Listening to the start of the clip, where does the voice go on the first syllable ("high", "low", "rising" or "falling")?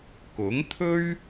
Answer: rising